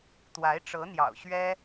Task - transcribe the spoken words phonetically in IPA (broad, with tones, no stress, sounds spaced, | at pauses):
t̪ w a˧˥ ɪ̯ ʈ͡ʂ ɤ˧˥ n̪ j ɑ̰˨˩ ʊ̯ ɕ ɥ ɛ˥